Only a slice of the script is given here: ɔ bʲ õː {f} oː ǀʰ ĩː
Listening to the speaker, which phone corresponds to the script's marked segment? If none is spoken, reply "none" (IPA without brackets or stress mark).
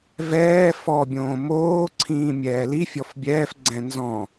m